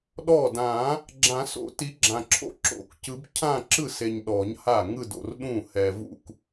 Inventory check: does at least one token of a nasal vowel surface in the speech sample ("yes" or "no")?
yes